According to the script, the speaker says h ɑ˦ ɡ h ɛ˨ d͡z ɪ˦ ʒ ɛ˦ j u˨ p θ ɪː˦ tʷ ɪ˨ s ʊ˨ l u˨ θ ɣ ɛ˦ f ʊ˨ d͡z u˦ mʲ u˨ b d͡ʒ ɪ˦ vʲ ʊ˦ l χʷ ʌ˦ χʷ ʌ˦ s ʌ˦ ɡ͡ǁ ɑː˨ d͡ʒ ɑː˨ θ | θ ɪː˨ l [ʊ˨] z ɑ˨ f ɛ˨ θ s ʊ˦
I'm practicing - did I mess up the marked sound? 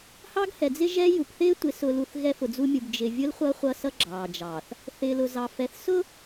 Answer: no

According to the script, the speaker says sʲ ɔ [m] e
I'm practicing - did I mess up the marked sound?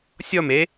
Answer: no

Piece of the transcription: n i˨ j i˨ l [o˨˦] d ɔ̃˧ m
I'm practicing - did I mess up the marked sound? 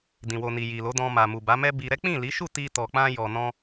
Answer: no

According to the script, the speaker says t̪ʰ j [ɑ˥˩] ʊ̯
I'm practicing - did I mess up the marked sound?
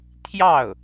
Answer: no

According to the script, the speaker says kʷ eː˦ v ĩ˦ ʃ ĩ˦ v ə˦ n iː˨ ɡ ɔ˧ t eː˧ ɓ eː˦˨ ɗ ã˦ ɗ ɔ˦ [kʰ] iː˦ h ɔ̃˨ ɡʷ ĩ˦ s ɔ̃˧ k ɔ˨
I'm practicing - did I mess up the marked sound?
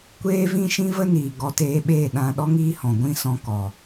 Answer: yes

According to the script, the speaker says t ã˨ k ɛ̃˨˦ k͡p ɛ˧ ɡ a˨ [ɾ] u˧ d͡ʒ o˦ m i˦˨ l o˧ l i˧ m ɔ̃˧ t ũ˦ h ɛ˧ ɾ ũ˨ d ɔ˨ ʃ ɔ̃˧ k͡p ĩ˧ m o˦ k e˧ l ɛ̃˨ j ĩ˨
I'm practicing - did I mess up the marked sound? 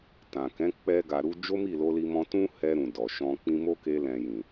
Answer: no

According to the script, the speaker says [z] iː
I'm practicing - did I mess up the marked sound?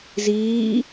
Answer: no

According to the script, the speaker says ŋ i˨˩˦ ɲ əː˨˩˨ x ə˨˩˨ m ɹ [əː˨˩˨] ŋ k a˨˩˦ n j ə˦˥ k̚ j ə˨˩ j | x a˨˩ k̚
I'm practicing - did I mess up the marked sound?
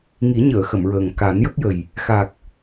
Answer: yes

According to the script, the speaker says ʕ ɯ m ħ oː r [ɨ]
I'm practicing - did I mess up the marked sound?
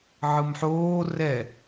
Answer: yes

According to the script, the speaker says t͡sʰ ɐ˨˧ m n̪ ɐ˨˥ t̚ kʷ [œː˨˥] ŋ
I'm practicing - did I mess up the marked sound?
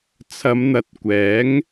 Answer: yes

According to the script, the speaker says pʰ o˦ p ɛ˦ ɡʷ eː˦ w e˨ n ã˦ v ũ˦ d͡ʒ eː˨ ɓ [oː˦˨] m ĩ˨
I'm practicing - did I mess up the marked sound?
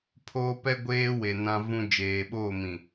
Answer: no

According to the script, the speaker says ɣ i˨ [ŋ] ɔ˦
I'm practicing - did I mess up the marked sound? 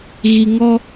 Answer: no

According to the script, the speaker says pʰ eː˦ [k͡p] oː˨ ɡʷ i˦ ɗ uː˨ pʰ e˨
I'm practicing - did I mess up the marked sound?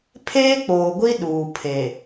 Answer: no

